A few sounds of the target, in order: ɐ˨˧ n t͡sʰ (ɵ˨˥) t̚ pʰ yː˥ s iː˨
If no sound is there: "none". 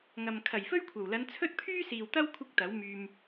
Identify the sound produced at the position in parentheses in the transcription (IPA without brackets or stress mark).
ɵ˥